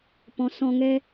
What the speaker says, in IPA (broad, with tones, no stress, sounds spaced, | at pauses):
p ɔ̃˨˦ s ɔ̃˧ ŋ ɛ˦